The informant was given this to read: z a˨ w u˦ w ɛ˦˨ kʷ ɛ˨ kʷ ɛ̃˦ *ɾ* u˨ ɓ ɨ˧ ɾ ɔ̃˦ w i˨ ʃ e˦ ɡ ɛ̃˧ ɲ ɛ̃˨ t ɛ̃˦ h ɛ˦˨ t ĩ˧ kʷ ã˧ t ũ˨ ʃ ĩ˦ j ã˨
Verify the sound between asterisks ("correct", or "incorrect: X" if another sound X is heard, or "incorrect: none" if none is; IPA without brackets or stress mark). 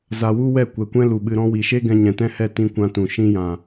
incorrect: l